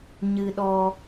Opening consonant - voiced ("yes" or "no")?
yes